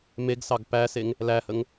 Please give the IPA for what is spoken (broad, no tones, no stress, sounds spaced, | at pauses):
m e ɡ s ɑ ɡ p æ s e ŋ | l æ h ə ŋ